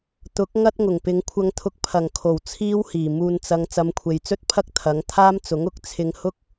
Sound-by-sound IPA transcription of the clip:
t̪ ʊ˨˥ k̚ ŋ ɐ˥ t̚ ŋ ʊ˨˩ ŋ p ɪ˨˧ ŋ kʷʰ ɐ˧ ŋ t̪ʰ ʊ˧ k̚ pʰ ɐ˨˩ ŋ kʰ o˨˩ w t͡sʰ iː˥ w h iː˨˩ m uː˨ n t͡s ɐ˨˧ ŋ t͡s ɐ˨˧ m kʷʰ e˨ j t͡s ɵ˥ t̚ pʰ ɐ˥ k̚ t̪ʰ ɐ˨˥ ŋ t̪ʰ aː˥ m t͡s ʊ˨˥ ŋ ʊ˨˥ k̚ t͡sʰ ɪ˧ ŋ h ʊ˥ k̚

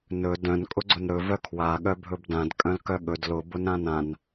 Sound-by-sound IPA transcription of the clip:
n ɵ d œ̃ n kʼ ʊ ɡ͡ǀ ʊ n ɾ ɵ v œ kʰ w a ɠ œ bʱ ɵ b d ã d kʼ œ̃ l k œ ɠ ɵ d l ʊ b ʊ n ɾ ã n ã n

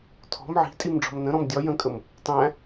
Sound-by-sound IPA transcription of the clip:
tʰ ɔ̤ m ʕ i̤ tʼ i m ɖ͡ʐ ɔ̤ m n ə̃ ɾ ɔ̃ m dʲ ɒ j ə̃ kʼ ə m | tˤ æ̃

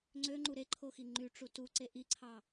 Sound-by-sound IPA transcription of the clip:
ŋ͡ǀ ø ŋ͡ǃ u ɾ e ǃʰ o x i ŋ͡ǃ y ʈ͡ʂ u t u ǀ e ʔ i ǀʰ ɑ

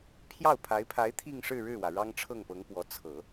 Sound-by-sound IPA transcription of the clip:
pʰ j ɑ˥˩ ʊ̯ pʰ a˧˥ ɪ̯ pʰ a˧˥ ɪ̯ t̪ʰ i˥˧ ŋ ʂ ɻ̩˥˧ ɻ ɻ̩˥˩ w ä˩ ɻ ɑ˥ ŋ ʈ͡ʂʰ ɤ˥˩ ŋ p ɤ˧˥ ŋ p w ɔ˧˥ t͡sʰ ɤ˨˩˦

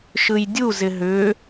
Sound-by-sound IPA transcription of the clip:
ʃ ɯ j dʲ u z ɪ ɦ ʏ

